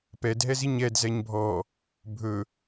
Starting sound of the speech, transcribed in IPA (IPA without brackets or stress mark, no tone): p